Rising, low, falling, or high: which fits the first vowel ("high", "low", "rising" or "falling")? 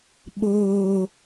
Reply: high